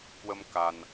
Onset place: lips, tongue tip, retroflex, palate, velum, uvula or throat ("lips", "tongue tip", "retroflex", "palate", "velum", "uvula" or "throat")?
velum